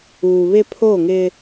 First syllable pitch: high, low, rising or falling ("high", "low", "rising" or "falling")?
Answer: low